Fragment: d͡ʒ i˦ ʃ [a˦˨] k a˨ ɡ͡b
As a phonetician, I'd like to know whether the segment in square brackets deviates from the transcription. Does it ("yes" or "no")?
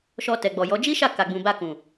no